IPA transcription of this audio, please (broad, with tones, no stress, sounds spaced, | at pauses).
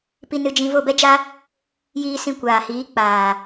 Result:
p i˧ n ɨ˧ d͡ʒ ĩ˧ v o˦˨ b ɛ˦ d͡ʒ a˦ | j iː˧ s ĩ˧ kʷ aː˨ h iː˨˦ k͡p aː˨